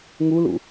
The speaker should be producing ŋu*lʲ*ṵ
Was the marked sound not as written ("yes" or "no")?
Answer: yes